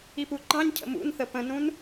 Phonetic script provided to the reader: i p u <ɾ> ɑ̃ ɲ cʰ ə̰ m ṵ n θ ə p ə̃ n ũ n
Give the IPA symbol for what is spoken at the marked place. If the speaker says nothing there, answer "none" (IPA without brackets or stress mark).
ǃ